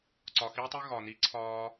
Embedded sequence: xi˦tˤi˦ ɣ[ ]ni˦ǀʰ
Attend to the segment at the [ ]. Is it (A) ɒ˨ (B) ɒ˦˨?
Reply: A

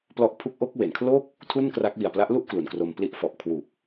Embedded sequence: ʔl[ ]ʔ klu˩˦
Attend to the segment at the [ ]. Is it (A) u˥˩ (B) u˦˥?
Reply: A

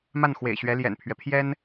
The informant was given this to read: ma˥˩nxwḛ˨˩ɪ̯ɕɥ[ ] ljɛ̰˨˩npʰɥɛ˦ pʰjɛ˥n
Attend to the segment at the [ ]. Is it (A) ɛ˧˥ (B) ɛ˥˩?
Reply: A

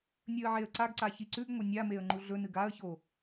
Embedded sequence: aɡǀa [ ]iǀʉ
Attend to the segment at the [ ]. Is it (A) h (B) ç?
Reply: B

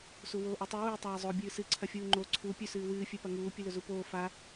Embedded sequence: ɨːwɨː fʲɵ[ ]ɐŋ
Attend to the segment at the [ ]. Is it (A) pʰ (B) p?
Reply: B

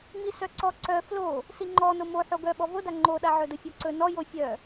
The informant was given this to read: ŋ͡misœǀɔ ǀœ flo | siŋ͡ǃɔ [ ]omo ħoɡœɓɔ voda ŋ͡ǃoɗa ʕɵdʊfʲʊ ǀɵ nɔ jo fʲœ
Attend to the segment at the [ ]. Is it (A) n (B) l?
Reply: A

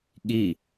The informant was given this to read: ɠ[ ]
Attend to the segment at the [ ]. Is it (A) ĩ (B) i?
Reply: B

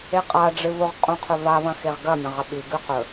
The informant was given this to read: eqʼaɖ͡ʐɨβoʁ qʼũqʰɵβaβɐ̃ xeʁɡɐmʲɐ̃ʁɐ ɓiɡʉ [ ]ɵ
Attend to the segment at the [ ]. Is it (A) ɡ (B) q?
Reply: B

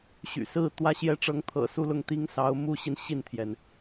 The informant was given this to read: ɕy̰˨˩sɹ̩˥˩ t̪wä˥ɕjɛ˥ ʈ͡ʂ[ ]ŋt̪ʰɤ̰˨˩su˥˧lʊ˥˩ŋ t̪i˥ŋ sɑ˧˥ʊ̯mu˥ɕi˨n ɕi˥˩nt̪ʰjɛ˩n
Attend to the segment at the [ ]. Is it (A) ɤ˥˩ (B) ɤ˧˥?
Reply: B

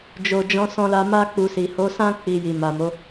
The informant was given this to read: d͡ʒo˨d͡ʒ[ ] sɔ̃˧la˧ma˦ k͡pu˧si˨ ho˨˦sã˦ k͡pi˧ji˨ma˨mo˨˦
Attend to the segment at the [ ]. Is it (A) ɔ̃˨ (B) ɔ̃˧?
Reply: B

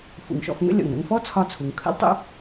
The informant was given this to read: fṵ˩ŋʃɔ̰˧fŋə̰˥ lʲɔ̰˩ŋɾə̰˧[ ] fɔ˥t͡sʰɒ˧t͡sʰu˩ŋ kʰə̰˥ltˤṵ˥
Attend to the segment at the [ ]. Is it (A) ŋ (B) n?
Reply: A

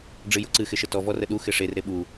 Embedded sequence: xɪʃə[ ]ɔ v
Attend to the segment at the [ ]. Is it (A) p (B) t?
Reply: B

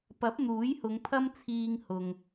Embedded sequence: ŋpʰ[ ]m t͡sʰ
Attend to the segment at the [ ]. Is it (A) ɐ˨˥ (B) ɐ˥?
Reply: B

